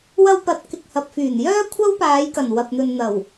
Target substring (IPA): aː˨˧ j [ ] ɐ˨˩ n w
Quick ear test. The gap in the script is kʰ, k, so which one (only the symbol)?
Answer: k